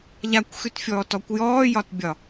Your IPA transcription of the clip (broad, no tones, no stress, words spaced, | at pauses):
ʎakʷxʉtfʲɔːtɔkʷ jɔːjɒtbʲɒ